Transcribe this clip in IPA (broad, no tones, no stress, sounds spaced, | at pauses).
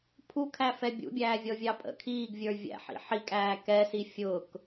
pʰ u kʰ æ f ɛ bʲ ṵ bʲ æː vʲ ɔ vʲ ɑ pʼ ə̰ kʰ iː ɡ vʲ ə˞ vʲ æ̰ ħ ḭ ħ i kʼ æː k ɛ s i fʲ ʊ k